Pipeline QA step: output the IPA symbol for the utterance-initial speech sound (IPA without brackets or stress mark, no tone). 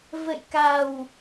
v